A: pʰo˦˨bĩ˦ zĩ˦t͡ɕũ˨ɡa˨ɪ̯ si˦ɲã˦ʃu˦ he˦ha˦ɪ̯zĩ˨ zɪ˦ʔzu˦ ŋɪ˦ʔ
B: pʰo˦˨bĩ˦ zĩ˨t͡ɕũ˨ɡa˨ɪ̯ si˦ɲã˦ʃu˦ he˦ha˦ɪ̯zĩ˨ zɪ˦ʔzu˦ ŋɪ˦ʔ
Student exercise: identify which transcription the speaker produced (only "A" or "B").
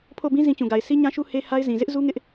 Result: A